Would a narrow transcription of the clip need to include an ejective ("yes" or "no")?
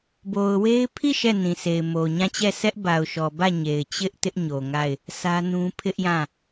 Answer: no